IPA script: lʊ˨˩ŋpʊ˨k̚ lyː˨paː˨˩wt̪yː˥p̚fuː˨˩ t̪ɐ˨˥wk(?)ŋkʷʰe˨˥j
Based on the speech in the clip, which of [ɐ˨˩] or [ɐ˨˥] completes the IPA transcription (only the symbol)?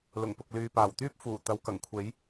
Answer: ɐ˨˩